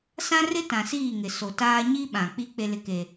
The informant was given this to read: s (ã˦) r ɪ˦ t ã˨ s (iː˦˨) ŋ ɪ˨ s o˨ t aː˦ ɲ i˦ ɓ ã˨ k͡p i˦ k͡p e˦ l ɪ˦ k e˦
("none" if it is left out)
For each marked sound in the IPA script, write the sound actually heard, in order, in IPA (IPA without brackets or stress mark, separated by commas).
ã˦, iː˦˨